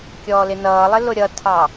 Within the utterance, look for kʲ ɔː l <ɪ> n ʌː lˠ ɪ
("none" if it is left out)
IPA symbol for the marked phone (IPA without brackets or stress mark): ɪ